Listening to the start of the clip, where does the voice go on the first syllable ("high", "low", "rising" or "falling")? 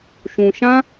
low